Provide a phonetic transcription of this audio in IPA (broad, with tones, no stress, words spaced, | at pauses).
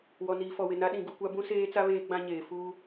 wɔ˨niː˨fɔ˨wɪ˨ na˦ ɗĩ˨ɡu˨kʷa˦ bũ˦seː˦t͡sa˦ βeː˦ɡ͡bã˦ɲeː˨ fuː˦